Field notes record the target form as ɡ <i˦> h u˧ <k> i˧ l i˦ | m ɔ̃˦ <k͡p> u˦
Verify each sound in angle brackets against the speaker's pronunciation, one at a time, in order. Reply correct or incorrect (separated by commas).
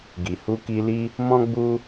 incorrect, correct, incorrect